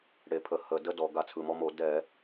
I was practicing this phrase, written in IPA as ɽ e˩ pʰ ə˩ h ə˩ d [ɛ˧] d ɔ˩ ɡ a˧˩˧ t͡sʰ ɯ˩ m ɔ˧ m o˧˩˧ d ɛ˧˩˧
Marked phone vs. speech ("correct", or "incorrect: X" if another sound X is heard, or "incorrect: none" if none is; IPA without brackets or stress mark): incorrect: ə˧